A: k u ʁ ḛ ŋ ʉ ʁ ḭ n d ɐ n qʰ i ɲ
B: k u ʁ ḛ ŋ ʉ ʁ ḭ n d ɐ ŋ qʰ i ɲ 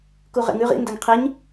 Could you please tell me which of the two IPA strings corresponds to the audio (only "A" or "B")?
B